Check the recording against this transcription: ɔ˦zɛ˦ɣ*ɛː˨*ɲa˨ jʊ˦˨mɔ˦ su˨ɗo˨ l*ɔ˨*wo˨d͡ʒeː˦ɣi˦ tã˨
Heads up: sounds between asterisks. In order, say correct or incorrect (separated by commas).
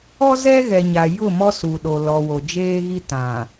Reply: incorrect, correct